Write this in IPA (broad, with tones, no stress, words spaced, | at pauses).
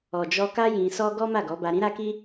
ɔ˨d͡ʒɔ˧ka˦ jĩ˧sɔ˦ ɡɔ˦ma˦˨ɡɔ˨˦ba˧ ɾĩ˦ɾa˦ki˦